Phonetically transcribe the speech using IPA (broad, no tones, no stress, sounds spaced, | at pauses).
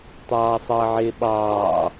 tˤ ɑː sˤ ʌː ʕ ɪː ɓ ɑː